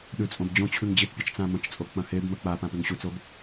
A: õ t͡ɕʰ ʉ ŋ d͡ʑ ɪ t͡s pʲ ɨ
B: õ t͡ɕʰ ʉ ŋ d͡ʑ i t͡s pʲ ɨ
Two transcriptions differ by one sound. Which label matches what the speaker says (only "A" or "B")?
B